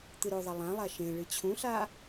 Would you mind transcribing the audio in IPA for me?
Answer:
t̪ ɨ ɾ o ðˤ ɐ lˠ ã lˠ a ʃ ẽ ɭ ɨ t͡ɕʰ ũ ɬ a

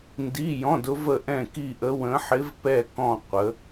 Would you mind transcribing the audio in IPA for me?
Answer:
n d i˧˥˧ j ɔ̃˧˥˧ d ʊ˧˥ v ə˦˨ ʔ ɛ̃˦˨ k i˦˨ ʔ ə˧˥ w ə̃˧˥ ħ ɪ˧˥ v p ɛ˦˨ k ɔ̃˦˨ qʷ ə˧˥

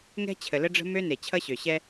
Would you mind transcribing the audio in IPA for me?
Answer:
ŋ ɛ̤˦ t͡ɕʰ ə˨ l ə˦ ɖ͡ʐ ə̤˦ m ø˦ n e˨ t͡ɕʰ ʌ˦ ɕ ø˨ ɕ ɛ˦

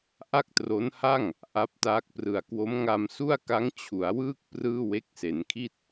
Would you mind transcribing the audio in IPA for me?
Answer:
ʔ a˥˩ k̚ t r o˦˥ n h a˥˩ ŋ | ʔ a˦˥ p̚ t aː˦˥ k̚ p r ɯ˨˩ a̯ k w o˦˥ m ŋ a˧ m s u˥˩ a̯ k a˦˥ ŋ t͡ɕʰ u˩˦ a̯ w ɯː˥˩ k̚ p r ɯː˥˩ w e˦˥ k̚ s e˩˦ n kʰ i˥˩ t̚

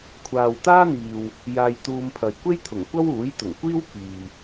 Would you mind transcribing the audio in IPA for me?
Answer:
kʷʰ aː˨ w t̪ aː˥ n̪ iː˨ w | j aː˧ j t̪ uː˧ m pʰ ɐ˨ j kʷ e˥ j t̪ʰ ʊ˨˩ ŋ kʷ ɐ˥ w uː˨˥ j t̪ ʊ˨˩ ŋ kʷ iː˥ w k iː˨

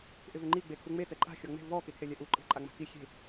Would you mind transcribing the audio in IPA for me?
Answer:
ʔ ɪ v ɪ ŋ͡ǃ i ɡ͡b e kʰ u ŋ͡m e t ɛ ǃʼ a̤ xʲ ɔ ŋ͡m e̤ v ɔ k e kʰ e lʲ ɛ ʔ u ǃʼ e̤ ǃʼ a ŋ͡m a̤ k i xʲ e̤

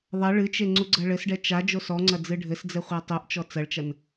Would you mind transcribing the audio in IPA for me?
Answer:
ðˤ ɐ ɭ ɨ t͡ʃ e ŋ͡ǀ u ɡ͡ǀ ɐ ɭ ɘ s ɖ ɛ t͡ʃ a d͡ʒ o s ɔ ŋ͡ǀ ɐ d͡z ɨ ɖʱ ɘ s d͡z ɛ χʷ a tˤ o ʔ t͡ʃ ɔ t͡s ɐ ɭ t͡ʃ ɐ n

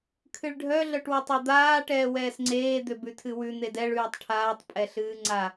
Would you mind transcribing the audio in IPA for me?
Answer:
kʰ ɨ ɭ ɖʱ œ ɮ œ ʈ w ɛ tˤ ɛ d̪ aː ʈ ɛː w ɛː s ŋ͡ǀ eː d̪ ø b ʉ tʰ ɨ w ʉ n̪ e d ɛ ɭ ʉː tˤ ʈʰ aː tˤ pʼ ɛ ɬ ɨː ŋ͡ǀ a

